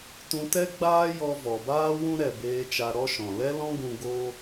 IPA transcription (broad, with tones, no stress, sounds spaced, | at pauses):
t ũ˧ t ɛ˦ ɡ͡b aː˦ j ɔ˧ v ɔ˨ b aː˦ w ũ˦ ɾ ɛ˨ b eː˧ t͡ʃ a˧ ɾ ɔ˦ ʃ ɔ̃˨ l ɛ˦ l ɔ̃˦ ɡ ũ˧ ɡ o˦